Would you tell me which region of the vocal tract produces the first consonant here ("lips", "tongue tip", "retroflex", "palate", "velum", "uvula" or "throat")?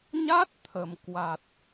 palate